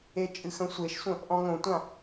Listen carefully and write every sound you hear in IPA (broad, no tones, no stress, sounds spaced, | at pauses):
e t͡ʃʼ ɨ x ə̃ sʷ e ʃ sʷ ə̃ | ʔ ɔ̃ ŋ õ tʷ ã